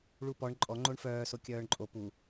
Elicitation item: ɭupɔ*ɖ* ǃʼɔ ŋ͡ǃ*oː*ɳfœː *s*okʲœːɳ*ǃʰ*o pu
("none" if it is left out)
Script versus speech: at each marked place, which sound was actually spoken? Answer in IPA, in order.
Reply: ɳ, o, s, ǃʼ

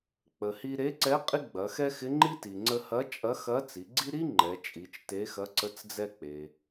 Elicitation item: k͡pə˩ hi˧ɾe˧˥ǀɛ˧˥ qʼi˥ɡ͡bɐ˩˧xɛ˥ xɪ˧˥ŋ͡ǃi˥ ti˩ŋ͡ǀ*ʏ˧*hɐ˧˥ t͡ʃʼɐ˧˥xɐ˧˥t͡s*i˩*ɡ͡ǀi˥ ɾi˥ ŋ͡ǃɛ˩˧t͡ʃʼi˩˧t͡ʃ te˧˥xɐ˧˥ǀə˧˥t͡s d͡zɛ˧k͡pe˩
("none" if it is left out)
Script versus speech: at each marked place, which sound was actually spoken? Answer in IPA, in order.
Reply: ə˧, i˩˧

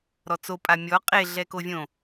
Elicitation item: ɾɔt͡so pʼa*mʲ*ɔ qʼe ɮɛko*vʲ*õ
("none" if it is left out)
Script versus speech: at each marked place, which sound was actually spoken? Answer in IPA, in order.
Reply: mʲ, vʲ

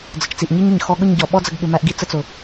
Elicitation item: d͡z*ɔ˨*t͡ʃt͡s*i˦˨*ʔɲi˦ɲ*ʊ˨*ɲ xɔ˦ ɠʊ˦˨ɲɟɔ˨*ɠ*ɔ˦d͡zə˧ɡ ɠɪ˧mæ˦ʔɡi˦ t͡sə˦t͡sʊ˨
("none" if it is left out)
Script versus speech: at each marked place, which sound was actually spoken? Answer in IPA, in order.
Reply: ə˨, i˨, ə˨, ɓ

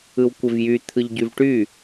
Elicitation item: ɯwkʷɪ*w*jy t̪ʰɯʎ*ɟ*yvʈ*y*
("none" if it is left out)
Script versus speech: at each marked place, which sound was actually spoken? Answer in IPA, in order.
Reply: v, ɟ, y

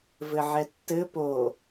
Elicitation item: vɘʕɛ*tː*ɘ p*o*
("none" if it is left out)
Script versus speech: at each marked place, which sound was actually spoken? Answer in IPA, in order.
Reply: tː, o

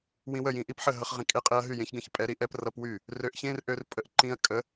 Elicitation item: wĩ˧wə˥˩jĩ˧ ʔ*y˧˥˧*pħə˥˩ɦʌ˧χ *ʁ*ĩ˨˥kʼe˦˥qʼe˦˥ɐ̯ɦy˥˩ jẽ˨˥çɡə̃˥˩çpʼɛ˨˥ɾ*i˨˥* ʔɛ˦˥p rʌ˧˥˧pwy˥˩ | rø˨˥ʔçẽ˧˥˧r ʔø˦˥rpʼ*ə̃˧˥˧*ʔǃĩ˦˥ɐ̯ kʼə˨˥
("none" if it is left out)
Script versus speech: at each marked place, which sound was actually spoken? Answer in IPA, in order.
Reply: i˧˥˧, ʁ, i˨˥, ə˧˥˧

